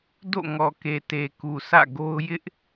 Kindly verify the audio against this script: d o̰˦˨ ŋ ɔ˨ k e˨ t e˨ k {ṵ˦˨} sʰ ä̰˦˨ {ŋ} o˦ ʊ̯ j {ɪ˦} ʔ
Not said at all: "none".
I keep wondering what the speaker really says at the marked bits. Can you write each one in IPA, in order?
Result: u˨, ɡ, ɪ˦

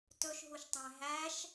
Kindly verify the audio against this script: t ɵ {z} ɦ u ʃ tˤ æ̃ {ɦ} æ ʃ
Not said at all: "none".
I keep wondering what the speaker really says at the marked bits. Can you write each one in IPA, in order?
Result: ʃ, ɦ

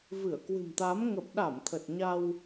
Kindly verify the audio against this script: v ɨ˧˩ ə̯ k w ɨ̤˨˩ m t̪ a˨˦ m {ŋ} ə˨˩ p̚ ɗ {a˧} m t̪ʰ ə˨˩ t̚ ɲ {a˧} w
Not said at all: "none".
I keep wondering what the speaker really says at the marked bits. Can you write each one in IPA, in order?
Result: ŋ, a˧˩, a˧

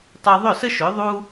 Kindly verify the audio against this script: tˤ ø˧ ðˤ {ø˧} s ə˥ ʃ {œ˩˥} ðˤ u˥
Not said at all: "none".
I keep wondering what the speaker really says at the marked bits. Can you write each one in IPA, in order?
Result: ø˥˩, ø˩˥

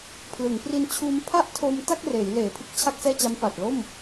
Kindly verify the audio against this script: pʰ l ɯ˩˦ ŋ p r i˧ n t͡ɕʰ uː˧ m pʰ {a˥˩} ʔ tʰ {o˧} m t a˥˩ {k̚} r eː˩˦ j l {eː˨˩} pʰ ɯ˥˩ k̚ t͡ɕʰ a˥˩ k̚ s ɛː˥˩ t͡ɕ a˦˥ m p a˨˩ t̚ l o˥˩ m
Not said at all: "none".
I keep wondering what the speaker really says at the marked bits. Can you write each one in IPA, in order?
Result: a˥˩, o˧, k̚, eː˨˩

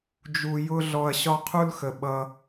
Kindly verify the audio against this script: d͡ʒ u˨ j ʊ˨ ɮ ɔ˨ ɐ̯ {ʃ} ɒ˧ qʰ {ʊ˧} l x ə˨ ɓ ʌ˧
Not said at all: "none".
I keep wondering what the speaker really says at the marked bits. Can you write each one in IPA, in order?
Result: ɕ, u˧

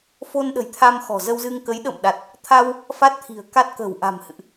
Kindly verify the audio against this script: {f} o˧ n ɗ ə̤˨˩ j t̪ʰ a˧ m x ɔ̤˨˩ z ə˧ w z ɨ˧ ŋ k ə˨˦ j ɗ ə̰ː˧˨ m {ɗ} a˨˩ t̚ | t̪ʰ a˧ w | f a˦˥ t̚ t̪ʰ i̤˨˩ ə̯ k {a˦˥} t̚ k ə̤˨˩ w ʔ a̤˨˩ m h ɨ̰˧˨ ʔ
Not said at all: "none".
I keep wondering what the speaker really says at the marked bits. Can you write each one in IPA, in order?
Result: f, ɗ, a˦˥

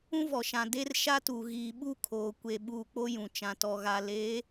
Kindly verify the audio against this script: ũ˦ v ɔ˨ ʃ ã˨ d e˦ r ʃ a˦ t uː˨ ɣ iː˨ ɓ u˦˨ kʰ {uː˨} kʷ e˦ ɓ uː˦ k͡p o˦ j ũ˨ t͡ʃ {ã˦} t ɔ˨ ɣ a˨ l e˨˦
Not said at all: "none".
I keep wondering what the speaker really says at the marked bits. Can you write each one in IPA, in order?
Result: oː˨, ã˨

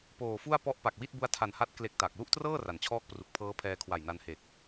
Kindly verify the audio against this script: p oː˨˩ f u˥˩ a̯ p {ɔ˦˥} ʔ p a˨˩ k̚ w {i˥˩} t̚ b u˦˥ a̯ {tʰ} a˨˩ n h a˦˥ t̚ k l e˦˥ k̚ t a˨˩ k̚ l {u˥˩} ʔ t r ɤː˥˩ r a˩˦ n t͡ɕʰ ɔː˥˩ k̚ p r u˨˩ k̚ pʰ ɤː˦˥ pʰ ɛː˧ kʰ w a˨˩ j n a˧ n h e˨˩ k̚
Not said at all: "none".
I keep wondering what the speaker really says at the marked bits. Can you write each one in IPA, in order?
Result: ɔ˦˥, i˥˩, tʰ, u˥˩

